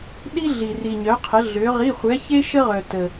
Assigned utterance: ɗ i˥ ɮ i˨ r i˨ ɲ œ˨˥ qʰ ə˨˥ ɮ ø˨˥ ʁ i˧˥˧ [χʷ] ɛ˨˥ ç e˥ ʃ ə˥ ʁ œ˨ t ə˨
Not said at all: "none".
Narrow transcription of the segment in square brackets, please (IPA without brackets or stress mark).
χʷ